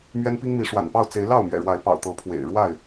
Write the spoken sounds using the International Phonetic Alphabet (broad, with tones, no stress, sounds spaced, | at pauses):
m ɥ ɛ˦ n p i˦ ŋ m i˨˦ ʂ w a̰˨˩ n p ɑ˥˨ ʊ̯ t͡s e˨˦ ɪ̯ l ɑ˥˨ ʊ̯ m ɥ ɛ̰˨˩ ɻ w a˨˦ ɪ̯ p ɑ̰˨˩ ʊ̯ t̪ ɤ˨˦ pʰ w ḛ˨˩ ɪ̯ ɻ w a˥˨ ɪ̯